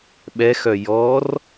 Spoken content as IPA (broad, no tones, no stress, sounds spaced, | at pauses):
ɓ ɛ x œ j ɔ r